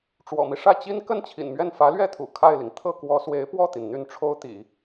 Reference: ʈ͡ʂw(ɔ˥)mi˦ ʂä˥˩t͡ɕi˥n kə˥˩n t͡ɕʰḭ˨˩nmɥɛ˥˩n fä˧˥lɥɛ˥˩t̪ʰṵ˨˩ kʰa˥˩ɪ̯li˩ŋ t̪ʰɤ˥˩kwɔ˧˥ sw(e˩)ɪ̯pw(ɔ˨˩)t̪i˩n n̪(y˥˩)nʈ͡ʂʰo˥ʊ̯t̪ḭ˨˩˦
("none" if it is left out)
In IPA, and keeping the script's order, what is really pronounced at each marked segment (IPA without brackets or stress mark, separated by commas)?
ɔ̰˨˩, e˧˥, ɔ˥˩, y˥˩